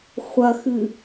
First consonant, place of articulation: uvular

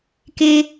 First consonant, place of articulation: velar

